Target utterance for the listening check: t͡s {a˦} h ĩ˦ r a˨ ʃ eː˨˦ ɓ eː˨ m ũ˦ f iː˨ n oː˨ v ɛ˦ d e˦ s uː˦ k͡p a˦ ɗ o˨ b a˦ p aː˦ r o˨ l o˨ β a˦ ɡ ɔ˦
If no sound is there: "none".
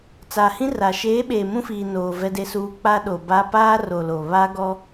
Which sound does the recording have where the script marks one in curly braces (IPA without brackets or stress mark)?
a˨